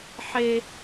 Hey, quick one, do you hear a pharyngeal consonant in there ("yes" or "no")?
yes